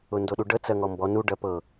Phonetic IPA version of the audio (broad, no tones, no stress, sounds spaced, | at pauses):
ʊ n d o ɗ u ɖ ə t͡s ɜ ŋ ɔ m b ɔ n u ɖ ɜ p ɤ